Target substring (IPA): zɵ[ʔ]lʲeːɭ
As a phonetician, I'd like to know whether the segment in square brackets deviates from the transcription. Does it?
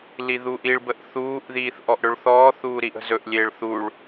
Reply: no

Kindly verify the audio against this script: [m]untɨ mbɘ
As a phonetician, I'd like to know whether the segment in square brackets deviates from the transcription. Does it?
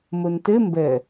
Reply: no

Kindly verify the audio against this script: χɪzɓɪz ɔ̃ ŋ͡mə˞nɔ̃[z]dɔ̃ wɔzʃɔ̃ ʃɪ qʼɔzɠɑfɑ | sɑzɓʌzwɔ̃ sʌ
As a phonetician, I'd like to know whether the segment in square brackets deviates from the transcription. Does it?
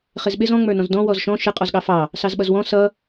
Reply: no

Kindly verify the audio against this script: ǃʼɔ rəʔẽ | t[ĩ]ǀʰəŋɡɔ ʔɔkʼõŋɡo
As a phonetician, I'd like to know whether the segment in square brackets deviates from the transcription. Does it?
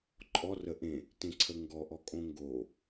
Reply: yes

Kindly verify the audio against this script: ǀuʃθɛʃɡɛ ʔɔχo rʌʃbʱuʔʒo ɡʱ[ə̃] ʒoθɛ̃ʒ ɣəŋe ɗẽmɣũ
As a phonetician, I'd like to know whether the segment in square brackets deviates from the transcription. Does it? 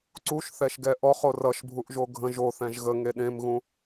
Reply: no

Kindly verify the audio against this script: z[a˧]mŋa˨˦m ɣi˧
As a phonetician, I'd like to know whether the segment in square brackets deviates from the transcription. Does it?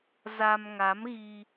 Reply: no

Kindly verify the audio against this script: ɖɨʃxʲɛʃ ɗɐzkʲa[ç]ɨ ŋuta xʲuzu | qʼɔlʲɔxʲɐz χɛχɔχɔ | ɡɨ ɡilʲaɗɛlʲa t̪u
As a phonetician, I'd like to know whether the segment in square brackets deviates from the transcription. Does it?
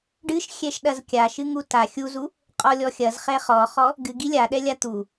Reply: yes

